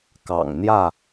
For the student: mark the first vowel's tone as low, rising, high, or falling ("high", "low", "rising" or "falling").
low